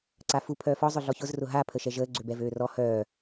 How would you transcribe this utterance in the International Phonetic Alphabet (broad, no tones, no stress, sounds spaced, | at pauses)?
ǀ a f u pʰ œː f ɔ zˤ ʊ ɮ ɔ ç ʊ z r ʊ ɦ a pʰ ə ʃ ɛ ʒ əː ɡ͡ǀ ø b ɛ v øː r ɔ h œː